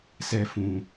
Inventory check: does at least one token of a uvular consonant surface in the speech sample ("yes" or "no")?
no